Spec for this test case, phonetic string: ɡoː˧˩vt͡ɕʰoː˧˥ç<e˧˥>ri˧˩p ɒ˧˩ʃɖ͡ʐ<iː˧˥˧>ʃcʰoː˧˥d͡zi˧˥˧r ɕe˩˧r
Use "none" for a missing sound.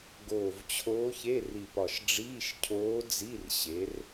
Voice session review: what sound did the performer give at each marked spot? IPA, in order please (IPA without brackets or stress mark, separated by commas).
e˧˥˧, iː˧˥˧